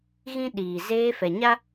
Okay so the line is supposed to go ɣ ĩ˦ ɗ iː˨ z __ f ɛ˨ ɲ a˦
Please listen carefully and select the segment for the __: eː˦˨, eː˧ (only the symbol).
eː˧